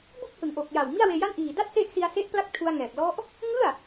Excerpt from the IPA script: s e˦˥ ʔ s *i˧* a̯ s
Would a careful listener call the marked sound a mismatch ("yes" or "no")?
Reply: no